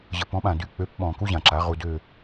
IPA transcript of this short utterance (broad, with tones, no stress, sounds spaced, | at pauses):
ʑ ə˩ p ɔ̃˩˧ ɓ ã˩ d y˩˧˩ k͡p ø˩˥ p ɓ ɔ̃˩ k u˦ ʑ ã˩ ǁ a˩˧ ʁ u˩˧˩ d ø˦˨